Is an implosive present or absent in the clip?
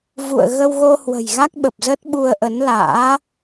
present